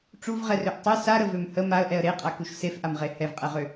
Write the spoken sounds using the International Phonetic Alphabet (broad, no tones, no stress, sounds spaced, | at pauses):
ʈ͡ʂ u v ʁ ɛ r ø ʔ tˤ ɨ s a ɾ ə v ø m h ə m a ə̯ ʔ ɛ ə̯ ɾ e qʼ a k u ʃ s e f ʔ a m ʁ e h ɛ v qʼ ɛ ʁ ø